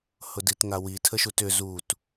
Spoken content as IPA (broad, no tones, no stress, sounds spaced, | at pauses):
h ʊ d i t ŋ a w i tʰ ə ʃ u t ʏ z u t